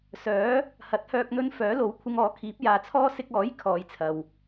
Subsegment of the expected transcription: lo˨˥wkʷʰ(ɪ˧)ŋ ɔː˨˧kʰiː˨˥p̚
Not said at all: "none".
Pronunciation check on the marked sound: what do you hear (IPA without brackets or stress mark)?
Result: ɪ˧